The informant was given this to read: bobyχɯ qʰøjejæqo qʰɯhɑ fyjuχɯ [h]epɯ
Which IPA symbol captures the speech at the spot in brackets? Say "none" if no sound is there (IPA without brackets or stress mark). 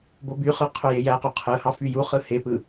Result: h